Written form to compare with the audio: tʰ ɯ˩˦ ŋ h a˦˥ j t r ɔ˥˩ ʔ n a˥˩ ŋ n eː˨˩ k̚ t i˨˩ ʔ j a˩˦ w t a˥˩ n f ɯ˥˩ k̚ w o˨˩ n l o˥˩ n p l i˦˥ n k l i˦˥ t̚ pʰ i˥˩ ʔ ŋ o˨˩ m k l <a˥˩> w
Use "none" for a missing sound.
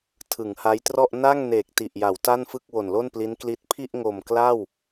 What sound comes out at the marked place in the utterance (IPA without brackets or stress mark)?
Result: a˥˩